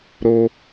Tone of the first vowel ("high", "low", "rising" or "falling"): high